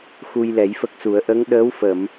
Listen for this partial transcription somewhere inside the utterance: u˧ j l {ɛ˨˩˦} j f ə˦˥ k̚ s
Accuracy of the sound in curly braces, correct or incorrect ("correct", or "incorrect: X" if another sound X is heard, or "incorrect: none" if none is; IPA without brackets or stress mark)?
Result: correct